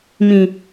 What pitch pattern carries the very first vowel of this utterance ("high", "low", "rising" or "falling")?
low